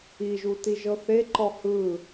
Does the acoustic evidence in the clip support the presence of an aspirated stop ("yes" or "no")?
no